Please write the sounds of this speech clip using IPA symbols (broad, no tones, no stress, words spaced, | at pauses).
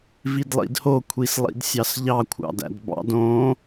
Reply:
vidlˠḭdho kʷʰislˠḭdsʲɑsʎɑ kʷʰɑ̰dæ̰dbɑ̰d õ